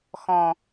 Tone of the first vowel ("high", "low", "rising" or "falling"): low